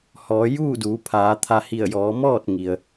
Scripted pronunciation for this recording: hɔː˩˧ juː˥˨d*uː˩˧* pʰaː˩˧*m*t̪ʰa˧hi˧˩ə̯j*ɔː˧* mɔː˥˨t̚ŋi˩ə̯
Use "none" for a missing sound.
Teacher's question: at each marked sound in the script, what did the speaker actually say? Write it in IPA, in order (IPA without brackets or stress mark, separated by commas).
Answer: uː˩˧, none, ɔː˩˧